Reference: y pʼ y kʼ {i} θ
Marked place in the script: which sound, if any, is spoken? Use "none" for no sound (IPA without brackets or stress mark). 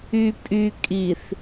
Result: i